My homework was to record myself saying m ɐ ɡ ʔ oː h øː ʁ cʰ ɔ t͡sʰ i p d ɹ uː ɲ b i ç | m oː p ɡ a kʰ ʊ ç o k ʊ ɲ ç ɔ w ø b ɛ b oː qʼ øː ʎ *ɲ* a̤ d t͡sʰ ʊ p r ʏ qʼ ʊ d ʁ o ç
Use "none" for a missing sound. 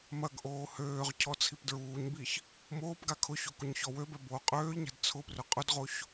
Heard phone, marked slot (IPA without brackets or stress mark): ɲ